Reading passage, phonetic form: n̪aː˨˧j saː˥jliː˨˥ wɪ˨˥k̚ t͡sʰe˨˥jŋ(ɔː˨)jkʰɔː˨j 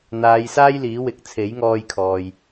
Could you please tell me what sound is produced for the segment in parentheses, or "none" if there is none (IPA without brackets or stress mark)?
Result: ɔː˧